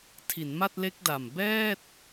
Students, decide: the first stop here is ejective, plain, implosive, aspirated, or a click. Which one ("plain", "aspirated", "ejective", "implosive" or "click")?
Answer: aspirated